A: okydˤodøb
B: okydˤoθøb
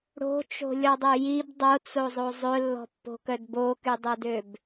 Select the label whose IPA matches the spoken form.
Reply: A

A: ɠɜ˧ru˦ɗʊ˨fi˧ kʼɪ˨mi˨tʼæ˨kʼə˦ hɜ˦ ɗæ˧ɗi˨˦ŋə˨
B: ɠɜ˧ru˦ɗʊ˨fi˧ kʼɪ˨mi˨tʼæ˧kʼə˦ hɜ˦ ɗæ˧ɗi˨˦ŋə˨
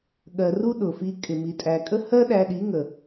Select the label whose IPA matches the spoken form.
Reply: A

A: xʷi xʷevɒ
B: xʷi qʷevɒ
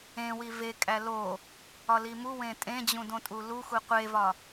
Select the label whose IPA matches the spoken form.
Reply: B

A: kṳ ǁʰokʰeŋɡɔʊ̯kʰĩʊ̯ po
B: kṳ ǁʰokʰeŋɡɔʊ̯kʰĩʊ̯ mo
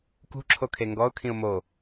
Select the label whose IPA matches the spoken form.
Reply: B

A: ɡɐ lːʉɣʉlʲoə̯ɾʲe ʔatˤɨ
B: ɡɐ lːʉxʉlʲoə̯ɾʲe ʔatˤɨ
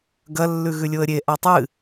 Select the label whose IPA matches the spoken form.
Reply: A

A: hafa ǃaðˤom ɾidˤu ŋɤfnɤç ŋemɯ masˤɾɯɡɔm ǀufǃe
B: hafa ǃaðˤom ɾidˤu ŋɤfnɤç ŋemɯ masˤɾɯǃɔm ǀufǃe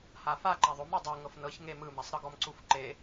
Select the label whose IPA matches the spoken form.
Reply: A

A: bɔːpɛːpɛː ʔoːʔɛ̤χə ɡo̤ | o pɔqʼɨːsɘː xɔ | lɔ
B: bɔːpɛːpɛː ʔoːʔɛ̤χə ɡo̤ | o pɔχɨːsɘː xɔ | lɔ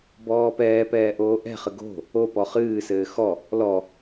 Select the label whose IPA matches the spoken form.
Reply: B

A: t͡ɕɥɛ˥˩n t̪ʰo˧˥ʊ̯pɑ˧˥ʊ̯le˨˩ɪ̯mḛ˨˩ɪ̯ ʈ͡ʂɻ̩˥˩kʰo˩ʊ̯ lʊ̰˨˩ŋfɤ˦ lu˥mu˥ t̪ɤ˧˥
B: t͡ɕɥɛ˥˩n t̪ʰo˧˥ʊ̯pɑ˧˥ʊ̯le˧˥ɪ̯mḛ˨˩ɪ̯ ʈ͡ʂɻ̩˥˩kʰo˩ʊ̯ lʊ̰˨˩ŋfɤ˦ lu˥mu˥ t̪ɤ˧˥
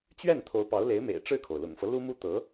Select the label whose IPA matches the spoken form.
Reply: B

